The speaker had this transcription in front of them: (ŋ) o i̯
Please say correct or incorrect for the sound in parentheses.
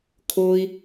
incorrect